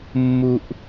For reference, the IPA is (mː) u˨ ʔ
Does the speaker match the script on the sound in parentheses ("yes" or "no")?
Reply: yes